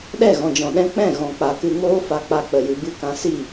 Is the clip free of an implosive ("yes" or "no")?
no